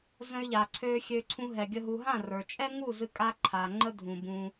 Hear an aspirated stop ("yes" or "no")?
yes